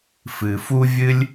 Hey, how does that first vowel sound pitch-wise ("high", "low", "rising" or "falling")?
low